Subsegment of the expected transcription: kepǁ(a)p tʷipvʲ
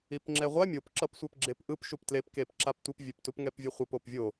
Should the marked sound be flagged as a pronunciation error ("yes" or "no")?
no